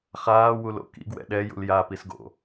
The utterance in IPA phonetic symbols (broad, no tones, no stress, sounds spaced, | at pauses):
χ aː w u l o̰ k ḭ ɡ w ɛ̰ ɗ ɛ j ṵ l j a p i s ɡ o̰